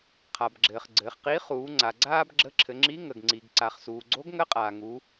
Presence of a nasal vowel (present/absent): absent